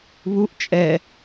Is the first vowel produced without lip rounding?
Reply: no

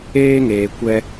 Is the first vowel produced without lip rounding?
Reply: yes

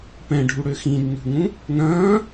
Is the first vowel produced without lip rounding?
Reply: yes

